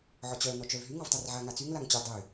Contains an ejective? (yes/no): no